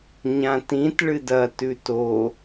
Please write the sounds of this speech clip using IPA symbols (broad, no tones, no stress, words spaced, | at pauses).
ɲãtĩt ɭɨdɐ tʉto